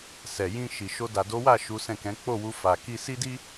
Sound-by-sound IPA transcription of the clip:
s ɛ˨ j ĩ˧ ʃ i˨ ʃ o˧ d a˨ d o˨˦ w a˦˨ ʃ u˨˦ s ɛ̃˦˨ k ɛ̃˨˦ k͡p o˦˨ w u˧ f a˨ k i˧ s i˦ d i˦

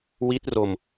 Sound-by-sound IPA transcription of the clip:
w i˦˥ t̚ r o˧ m

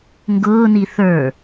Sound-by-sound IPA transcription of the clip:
ŋ ɡ ʊː n i θ ə˞

